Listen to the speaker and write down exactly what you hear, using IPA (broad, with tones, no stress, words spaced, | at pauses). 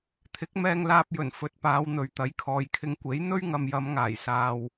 t̪ʰɪ˨˥k̚mɛː˧ŋlaː˧p̚jɵ˨˩n fɵ˨t̚paː˨˧wn̪ɵ˨˧ɥ t̪ɐ˨˥jkʰɔː˨˧jkʰɪ˧ŋ kʷe˨˥j n̪ɵ˥ɥŋɐ˨mjɐ˨˧m ŋaː˨˩jsaː˨w